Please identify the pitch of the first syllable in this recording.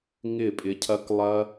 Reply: falling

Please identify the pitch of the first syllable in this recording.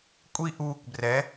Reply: high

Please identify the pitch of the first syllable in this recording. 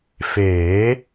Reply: rising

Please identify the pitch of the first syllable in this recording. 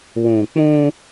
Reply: low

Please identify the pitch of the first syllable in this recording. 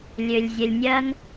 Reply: low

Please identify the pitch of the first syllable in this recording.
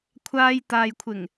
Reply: high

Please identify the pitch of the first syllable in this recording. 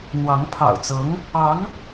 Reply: rising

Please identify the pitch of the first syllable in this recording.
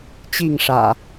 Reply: falling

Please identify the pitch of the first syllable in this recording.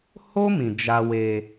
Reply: high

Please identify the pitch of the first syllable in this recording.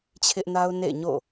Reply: high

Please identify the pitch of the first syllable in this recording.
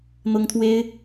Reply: high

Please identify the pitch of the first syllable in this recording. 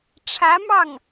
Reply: rising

